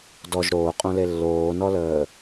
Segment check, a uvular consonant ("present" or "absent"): present